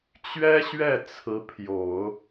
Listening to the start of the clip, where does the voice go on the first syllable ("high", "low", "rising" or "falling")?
high